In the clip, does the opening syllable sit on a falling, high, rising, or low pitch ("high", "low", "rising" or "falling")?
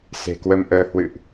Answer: low